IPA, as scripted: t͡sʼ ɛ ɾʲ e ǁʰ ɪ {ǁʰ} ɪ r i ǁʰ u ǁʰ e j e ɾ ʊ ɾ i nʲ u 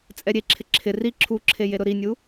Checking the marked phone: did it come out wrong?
no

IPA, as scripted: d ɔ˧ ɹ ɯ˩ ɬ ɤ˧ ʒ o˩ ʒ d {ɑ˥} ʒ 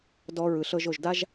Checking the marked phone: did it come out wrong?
yes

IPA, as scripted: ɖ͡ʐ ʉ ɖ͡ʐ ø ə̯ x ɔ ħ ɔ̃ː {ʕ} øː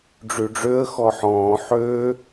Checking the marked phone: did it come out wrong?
yes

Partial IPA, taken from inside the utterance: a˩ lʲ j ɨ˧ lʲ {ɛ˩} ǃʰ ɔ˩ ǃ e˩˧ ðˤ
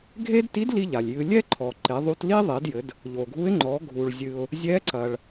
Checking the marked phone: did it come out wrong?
yes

